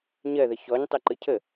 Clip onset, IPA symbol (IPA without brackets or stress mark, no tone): ɲ